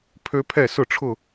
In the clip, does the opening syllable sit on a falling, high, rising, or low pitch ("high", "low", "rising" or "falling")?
high